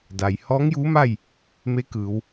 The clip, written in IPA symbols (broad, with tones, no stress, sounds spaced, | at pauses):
d a˩ j h ɔː˧˥ ŋ j uː˧˥ m a˥˨ j | m e˧˥ k ɯː˩˧ w